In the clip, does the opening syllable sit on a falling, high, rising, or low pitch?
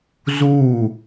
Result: falling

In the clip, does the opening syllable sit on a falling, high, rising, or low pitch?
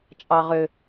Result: low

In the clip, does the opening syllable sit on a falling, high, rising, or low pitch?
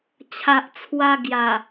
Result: low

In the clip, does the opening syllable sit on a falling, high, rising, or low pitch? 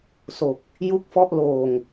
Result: low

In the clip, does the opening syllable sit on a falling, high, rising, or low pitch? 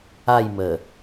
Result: falling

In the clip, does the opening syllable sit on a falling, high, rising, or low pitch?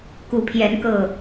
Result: rising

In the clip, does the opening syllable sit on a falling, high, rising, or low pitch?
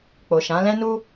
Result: low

